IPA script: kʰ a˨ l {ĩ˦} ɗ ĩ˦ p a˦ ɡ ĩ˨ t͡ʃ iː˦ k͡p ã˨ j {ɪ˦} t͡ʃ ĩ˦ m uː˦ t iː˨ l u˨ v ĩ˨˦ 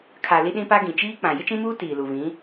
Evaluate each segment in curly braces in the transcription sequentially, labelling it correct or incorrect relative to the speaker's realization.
incorrect, correct

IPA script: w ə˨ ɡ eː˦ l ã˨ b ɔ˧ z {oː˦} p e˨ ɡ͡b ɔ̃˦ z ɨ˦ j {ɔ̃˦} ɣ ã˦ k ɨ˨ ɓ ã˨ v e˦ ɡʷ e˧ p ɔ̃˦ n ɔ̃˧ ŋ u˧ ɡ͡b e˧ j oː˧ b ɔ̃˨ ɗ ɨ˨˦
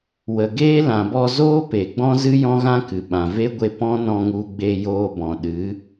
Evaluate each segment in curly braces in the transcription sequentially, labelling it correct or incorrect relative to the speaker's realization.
correct, correct

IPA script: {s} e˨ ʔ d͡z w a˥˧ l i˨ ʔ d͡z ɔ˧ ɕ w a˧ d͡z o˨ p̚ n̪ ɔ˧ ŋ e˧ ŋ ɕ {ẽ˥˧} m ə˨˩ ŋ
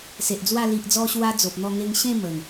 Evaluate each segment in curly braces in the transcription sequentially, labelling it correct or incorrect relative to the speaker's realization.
correct, correct

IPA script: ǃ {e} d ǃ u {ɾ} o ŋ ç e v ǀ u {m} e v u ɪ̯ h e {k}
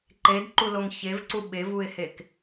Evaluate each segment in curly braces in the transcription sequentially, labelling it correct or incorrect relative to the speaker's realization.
correct, incorrect, incorrect, correct

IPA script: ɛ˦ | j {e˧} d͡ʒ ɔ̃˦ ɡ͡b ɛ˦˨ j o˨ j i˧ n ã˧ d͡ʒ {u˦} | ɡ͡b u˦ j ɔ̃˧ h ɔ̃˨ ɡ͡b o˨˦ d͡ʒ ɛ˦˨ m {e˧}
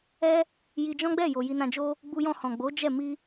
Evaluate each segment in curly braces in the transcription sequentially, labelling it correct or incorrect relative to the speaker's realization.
incorrect, incorrect, incorrect

